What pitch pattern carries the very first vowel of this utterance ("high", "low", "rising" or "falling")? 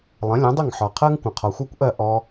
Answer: rising